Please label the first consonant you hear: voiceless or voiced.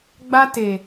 voiced